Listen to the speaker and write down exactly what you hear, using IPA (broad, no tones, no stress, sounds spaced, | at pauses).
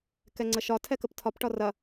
k ɛ ŋ͡ǀ ə ʃ ɒ tʰ ɛ k ə p tʰ ɒ p ʈ ɒ r ɐ